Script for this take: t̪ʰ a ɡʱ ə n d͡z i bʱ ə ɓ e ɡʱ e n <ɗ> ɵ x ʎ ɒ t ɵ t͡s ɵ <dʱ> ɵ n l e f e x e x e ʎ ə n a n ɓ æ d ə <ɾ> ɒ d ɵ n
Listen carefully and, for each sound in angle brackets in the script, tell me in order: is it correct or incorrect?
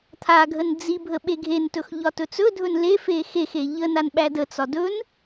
incorrect, correct, incorrect

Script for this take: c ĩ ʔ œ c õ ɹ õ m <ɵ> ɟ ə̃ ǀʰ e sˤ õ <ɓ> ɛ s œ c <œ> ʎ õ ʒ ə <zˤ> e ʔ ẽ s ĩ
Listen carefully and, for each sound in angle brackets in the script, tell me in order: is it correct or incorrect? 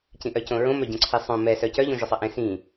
incorrect, incorrect, correct, incorrect

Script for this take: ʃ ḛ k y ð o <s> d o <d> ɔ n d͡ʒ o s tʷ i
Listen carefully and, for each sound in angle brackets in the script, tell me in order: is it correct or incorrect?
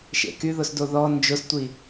correct, incorrect

